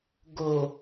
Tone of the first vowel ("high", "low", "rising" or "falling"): low